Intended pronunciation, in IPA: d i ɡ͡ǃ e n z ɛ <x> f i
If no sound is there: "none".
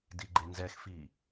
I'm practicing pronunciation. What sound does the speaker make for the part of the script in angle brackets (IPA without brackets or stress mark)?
x